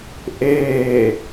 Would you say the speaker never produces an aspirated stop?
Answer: yes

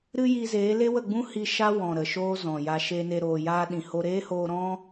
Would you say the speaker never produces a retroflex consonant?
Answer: yes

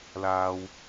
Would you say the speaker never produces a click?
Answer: yes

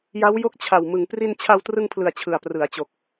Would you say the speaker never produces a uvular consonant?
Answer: yes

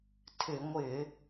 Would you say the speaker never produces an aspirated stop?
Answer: no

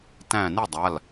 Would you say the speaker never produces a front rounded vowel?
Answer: yes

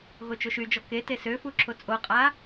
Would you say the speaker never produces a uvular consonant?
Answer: no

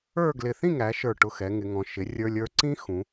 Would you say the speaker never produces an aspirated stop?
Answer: yes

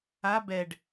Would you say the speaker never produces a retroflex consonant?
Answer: no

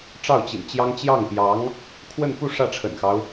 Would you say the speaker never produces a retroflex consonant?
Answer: no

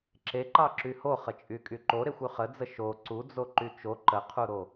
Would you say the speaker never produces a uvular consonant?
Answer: no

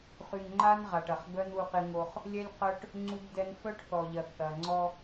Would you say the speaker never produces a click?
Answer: no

